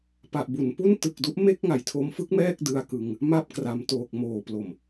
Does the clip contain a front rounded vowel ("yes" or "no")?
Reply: no